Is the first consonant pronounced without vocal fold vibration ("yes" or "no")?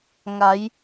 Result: no